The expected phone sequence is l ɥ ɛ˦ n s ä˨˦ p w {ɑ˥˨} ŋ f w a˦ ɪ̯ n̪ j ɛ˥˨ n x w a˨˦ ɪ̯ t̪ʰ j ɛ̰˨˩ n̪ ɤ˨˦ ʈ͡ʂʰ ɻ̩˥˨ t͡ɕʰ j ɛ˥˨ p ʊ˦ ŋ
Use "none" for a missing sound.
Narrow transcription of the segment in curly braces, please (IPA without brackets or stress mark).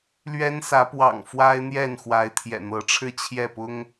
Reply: ɑ̰˨˩